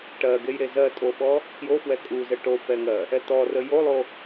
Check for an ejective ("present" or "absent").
present